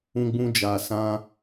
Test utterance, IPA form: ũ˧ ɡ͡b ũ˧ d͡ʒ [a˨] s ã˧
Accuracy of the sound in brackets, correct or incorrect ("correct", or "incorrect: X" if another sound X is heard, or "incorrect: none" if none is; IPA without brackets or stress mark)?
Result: correct